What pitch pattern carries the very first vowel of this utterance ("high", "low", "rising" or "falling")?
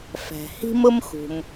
low